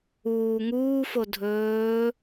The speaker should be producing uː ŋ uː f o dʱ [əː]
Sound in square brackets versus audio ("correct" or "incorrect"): incorrect